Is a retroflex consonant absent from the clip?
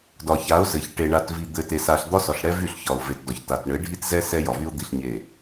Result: no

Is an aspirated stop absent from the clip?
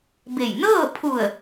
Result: no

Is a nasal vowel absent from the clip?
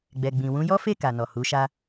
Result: no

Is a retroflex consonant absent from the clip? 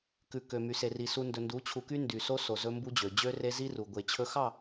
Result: yes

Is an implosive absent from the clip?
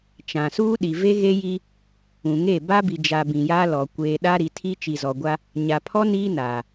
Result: no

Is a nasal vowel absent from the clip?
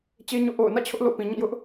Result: no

